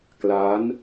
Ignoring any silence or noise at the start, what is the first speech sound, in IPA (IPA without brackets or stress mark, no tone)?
k